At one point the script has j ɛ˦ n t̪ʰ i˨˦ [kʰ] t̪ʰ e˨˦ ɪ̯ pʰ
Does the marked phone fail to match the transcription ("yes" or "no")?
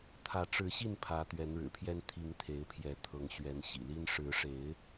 yes